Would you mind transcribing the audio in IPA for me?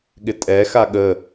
ɠ ɪ tʼ ɛ x a ɠ ə

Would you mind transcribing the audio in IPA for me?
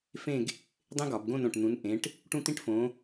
f ẽ˥˧ ɡ | dˤ ẽ˥ ɡ ɒ˧˩˧ b ɡ õ˥˧ n õ˧˩ ʈ n̪ ũ˨˦ n ʔ ẽ˨˦ ʈ | ʈ ũ˥˧ t̪ ĩ˥˧ ʈ f õ˨˦

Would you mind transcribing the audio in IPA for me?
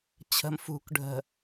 t͡ɕʰ ə̤ m f ṳ k ɖʱ ə̤

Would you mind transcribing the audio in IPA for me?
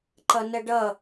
ǃ ʌ n ə ɖ ʌ

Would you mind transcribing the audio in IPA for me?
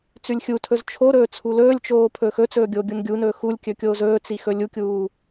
t͡s ʉ lʲ xʲ u tʰ ɵ z t͡ʃʰ o ɾ ɵː t͡sʰ u l ɵː lʲ t͡ʃ oː pʰ ɵː x ɵ t͡s ɵː ɡʲ oː ɡʲ u n ɡʲ u n ɵː x u lʲ kʲ ɵ kʲ oː z ɵː t͡s i x ɵ lʲ u kʲ uː

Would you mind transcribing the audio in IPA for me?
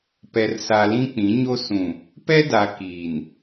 p ɛ˨ r s a˨ l ĩ˦ k͡p ĩ˨˦ ɲ o˦ s ũ˨ | p ɛ˦ d a˨ k iː˨ n

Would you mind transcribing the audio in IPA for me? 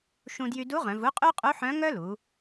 ʃ ũ˧ d j y˧ d u˧˥ ʁ œ̃˩˧ v u˧˥ qʼ ʉ˥ qʼ u˧˥ ħ œ̃˧˥ ŋ œ˥ l u˩˧

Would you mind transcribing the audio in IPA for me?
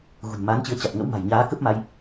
ɣ ṳ˨˩ n m aː˨˦ n t͡ɕ ɨ˨˦ ə̯ t͡ɕ a˨˩ t̚ ŋ ə̰˧˥ w m a̤˨˩ j ɲ aː˨˦ k ə˦˥ p̚ m a˧ j

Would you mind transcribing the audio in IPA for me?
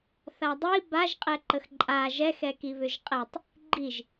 θ a dˤ i b a ʒ qʼ ɛ ǃ ə x ǃʼ a ʒ ɛ x ɛ k i β ʏ ʒ qʼ ɛ tˤ | ɡ͡ǃ i ʒ

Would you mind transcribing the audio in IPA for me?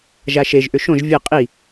ʒ a ʃ e ʒ ʔ ʏ ʃ õ ʒ vʲ ɘ qʼ i

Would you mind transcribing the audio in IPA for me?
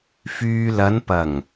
f yː˨ l ɐ˨˧ n p ɐ˨˩ ŋ

